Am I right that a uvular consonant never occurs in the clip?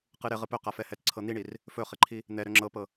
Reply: no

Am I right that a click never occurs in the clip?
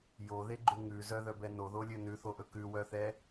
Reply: no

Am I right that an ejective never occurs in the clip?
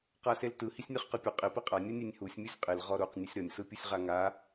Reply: no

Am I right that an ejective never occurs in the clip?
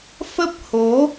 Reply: yes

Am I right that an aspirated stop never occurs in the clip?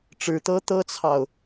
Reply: no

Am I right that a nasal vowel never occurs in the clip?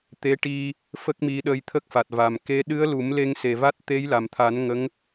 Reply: yes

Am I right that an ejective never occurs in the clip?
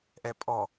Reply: no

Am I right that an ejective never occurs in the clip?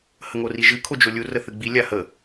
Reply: yes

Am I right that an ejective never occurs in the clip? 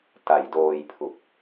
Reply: yes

